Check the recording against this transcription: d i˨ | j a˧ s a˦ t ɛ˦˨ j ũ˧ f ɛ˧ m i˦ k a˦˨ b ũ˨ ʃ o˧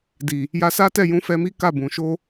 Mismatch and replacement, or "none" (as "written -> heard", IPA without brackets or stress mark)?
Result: none